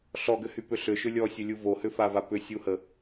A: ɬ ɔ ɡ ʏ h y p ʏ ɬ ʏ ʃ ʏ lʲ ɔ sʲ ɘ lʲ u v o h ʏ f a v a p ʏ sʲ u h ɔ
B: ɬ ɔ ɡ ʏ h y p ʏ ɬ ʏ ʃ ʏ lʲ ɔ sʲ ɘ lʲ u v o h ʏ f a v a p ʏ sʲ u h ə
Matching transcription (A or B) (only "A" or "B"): B